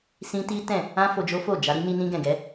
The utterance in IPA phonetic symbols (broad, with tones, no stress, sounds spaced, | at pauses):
s ĩ˦ t i˦ t ɛ̃˦˨ | ã˦ f o˧ d͡ʒ o˦ f o˦˨ d͡ʒ a˧ ɾ i˦ n i˧ n ĩ˧ ɡ ɛ̃˨ ɡ ɛ˨˦